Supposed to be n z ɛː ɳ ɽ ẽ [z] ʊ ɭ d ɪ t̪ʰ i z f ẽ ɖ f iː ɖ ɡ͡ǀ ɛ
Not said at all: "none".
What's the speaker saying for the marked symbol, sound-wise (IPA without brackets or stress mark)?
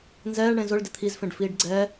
z